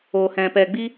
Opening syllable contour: low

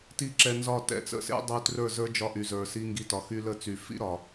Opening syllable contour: high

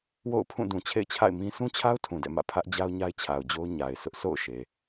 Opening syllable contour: falling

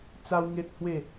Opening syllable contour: high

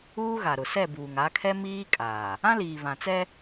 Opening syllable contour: high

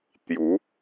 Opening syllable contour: rising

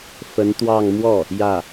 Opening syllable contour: rising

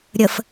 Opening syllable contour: low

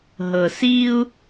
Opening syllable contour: low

